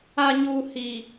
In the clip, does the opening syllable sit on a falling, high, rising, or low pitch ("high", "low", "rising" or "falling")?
low